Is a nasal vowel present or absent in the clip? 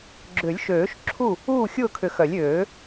absent